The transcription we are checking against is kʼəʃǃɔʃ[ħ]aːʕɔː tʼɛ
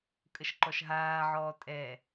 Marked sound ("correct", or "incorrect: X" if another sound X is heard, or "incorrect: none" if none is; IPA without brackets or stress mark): incorrect: ɦ